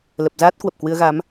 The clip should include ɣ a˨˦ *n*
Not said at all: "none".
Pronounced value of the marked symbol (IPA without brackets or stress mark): m